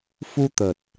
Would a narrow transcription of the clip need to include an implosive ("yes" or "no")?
no